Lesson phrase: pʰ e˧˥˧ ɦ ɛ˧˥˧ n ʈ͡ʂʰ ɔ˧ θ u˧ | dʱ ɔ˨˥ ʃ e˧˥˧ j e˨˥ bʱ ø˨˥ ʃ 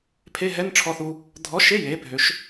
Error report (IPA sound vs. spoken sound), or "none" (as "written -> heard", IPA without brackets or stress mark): none